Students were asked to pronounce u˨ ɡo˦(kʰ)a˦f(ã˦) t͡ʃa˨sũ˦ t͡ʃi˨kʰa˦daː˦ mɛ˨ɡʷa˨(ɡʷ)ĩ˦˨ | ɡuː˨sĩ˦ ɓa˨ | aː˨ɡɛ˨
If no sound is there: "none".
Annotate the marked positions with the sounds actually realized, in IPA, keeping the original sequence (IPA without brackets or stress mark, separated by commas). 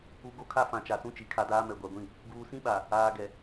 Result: kʰ, ã˨, ɡʷ